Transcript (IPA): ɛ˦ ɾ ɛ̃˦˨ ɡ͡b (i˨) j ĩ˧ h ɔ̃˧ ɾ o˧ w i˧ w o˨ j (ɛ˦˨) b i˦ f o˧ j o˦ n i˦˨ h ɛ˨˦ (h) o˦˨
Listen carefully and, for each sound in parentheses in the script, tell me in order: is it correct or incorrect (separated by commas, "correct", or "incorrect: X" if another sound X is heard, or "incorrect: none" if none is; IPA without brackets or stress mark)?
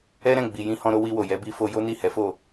correct, incorrect: ɛ˨˦, incorrect: f